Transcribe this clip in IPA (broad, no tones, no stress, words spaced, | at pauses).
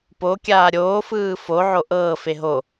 pokʲaː ɾʲoːfɯː foʕo ʔɤːfe ɦo